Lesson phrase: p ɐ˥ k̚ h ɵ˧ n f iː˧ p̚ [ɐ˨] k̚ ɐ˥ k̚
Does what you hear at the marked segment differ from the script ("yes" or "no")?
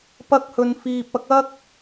yes